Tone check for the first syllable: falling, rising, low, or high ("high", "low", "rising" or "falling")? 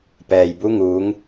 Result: low